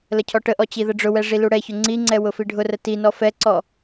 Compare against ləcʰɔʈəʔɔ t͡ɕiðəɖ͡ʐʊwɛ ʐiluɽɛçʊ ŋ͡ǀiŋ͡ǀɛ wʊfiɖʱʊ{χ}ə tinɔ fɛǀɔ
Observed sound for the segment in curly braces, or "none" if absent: r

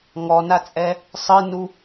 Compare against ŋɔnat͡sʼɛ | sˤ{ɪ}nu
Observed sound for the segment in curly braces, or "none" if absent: ɨ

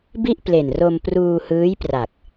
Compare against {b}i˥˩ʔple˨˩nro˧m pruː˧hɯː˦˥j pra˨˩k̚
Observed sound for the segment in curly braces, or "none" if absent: b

